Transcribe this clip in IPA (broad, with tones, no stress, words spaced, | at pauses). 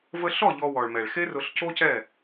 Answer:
və˧ɬɔ˦˨ ʎɔ˧wɔ˨ɭmɛ˨ɭ xe˦rʊ˧ɬco˦cɛ˦˨